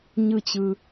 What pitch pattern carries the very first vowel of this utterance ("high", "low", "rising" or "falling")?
high